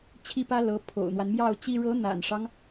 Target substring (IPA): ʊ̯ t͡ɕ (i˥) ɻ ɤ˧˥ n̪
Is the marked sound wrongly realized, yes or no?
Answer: no